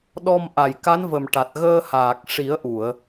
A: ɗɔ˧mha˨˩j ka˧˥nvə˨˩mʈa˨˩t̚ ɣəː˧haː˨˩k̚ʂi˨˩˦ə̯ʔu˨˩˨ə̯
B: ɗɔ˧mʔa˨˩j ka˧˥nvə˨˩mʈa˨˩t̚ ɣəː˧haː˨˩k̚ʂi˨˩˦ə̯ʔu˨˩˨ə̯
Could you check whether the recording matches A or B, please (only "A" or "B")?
B